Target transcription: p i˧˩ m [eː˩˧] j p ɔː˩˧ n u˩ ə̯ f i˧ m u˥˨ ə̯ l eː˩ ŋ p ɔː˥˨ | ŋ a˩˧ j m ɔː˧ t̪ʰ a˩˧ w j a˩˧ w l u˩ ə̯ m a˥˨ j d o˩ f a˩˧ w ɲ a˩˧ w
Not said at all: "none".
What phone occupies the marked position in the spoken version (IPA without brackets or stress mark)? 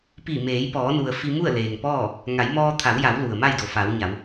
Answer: eː˩˧